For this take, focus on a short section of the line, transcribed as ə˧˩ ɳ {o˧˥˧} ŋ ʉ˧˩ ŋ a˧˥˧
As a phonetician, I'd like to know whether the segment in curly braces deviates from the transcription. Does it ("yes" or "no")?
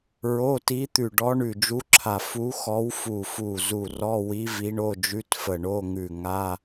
no